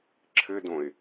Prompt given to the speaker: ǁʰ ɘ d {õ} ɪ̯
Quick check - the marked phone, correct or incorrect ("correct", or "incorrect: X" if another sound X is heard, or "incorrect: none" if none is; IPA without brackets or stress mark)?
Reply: correct